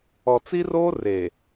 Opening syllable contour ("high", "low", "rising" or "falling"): low